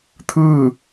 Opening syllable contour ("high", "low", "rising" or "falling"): falling